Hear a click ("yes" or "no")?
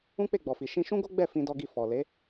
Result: no